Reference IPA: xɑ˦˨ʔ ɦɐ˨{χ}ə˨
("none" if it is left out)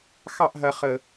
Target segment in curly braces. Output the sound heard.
χ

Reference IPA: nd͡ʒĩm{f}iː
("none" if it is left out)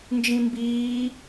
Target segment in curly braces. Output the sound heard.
b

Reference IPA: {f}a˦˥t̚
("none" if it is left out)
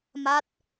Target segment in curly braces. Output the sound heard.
m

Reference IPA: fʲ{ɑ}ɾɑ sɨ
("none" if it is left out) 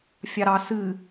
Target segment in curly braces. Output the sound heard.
ɑ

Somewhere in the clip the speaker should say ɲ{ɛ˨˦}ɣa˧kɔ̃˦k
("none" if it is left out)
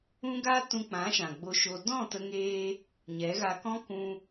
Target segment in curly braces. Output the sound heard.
ɛ˨˦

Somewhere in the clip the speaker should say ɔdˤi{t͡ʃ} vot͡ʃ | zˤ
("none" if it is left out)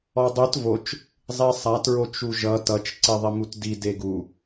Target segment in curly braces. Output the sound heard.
t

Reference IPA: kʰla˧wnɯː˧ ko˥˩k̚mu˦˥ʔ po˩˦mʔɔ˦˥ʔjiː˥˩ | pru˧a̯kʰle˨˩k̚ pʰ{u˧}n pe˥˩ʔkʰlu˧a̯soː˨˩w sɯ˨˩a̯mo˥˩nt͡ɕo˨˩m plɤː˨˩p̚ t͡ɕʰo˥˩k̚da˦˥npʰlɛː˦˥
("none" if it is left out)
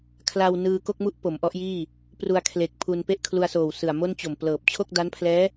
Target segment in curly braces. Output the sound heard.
u˧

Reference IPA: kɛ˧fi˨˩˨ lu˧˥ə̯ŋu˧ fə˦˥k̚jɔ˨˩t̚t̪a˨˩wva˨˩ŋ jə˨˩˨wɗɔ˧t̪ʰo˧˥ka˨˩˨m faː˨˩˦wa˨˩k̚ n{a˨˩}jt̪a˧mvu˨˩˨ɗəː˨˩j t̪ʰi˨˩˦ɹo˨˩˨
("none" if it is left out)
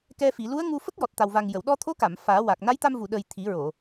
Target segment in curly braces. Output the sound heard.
a˧˥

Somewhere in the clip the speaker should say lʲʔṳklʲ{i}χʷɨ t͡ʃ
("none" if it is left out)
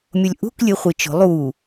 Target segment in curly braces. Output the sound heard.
ɨ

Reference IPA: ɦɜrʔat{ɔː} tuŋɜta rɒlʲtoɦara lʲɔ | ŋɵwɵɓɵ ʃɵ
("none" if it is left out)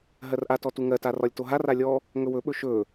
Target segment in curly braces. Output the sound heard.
ɔ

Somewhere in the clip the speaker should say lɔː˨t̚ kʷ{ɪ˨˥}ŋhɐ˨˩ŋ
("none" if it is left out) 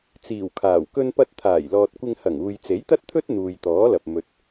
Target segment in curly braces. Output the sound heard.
ɪ˧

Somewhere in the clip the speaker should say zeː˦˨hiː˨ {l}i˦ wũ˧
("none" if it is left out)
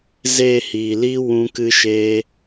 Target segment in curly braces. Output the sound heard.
l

